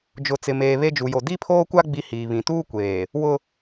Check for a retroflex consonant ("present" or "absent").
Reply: absent